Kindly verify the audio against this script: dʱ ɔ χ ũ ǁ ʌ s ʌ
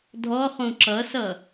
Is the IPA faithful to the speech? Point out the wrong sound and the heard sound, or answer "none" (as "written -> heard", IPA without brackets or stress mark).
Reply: none